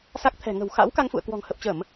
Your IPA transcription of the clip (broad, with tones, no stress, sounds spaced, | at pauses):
s a˦˥ k̚ t̪ʰ ɛ̤˨˩ ŋ ə̤˨˩ w x a̰˧˥ w k a˧ ŋ f ṵ˧˨ ə̯ k w ɔ̤˨˩ ŋ h ə˨˩ p̚ t͡ɕ ə˧˩˨ m